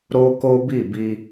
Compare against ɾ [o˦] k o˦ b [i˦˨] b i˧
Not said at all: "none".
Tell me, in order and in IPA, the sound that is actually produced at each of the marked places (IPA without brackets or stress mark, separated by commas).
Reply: o˦, i˦˨